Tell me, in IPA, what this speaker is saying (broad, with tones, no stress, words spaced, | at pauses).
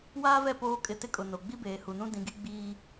waː˦vɛ˦˨ poː˦kʼɪ˦˨ tɪ˦kʼʊ˨ no˨ ɡ͡bi˦beː˨hu˨nũ˦ dĩ˨ɡi˦ ɡ͡biː˦